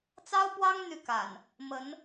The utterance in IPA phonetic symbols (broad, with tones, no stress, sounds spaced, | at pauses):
t͡s ɑ˦ ʊ̯ p w ɑ˦ ŋ n̪ y˥˨ k a̰˨˩ n | m ə˨˦ n